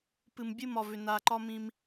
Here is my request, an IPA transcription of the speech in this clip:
p ɨ˨ m bʲ ɨ˦˨ m ɒ˨ v ʏ˨ n a˨ ǃ ɒ˦ m ĩ˦ m

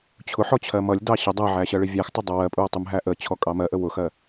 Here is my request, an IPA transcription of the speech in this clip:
t͡ɕʰ ʊ ħ ɔ t͡ɕʰ ɜ m ʌ lʲ d ɑ ɕ ə dˤ æ ʕ æ ɕ ɜ ɭ i vʲ æ x tˤ ə dˤ ʌ w ɜ pʼ u ɐ̯ tˤ ʊ m ɦ æ ʔ ə t͡ɕʰ ɔ kʼ ɑ m ɜ ʔ ə w ʊ x ɜ

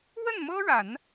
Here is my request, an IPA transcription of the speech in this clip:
w ə˥˩ n m ɤ˥ ɻ a˨˩˦ n

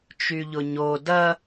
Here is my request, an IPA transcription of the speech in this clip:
t͡ʃ y ʎ ʊ ɲ o d ɐ

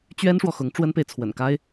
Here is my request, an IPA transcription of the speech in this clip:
t͡ɕ ɥ ɛ˥ n ʂ w ɔ˨ x ʊ˧˥ ŋ ʈ͡ʂ w ə˥ n p e˨ ɪ̯ t͡sʰ w ə̰˨˩ n k a˥ ɪ̯

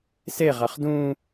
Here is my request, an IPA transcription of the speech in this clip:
s e ʁ a χ d ũ

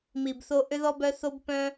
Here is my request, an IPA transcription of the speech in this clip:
m i˨ b θ o˧ ʔ ʏ˧ ð ɔ˧ b œ˧ θ o˧ b p œ̃˦

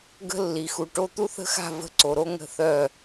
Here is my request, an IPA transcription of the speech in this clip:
ɡ ə̤˦ lː i˨ x u˨ ʈ o˦ t̪ u˦ θ ə̤˦ x a̤˦˨ v ə̤˦ ǀ o˨ ɾ o˦ ŋ ə̤˦˨ θ œ˦˨

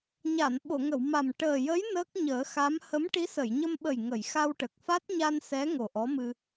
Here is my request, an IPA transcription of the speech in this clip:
ɲ a˨˩˨ n ɓ o˨˩˨ ŋ ə˨˩˨ w m a˨˩ m ʈ əː˨˩ j ə˧˥ j n əː˦˥ k̚ ɲ əː˨˩˦ x a˧˥ m h ə˧˥ m ʈ i˧˥ s ə˨˩˨ j ɲ ə˧ m ɓ ə˨˩ j ŋ ə˨˩˨ j x a˧ w ʈ ə˨˩ k̚ f a˦˥ t̚ ɲ a˧ n s ɛ˧˥ ŋ o˨˩ ʔ ɔ˧˥ m ɨ˧

